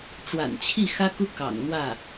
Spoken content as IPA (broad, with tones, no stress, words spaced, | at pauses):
ʈ͡ʂwa̰˨˩nt͡ɕʰi˥˩xä˥ku˥ kɑ̰˨˩ŋn̪wä˥˩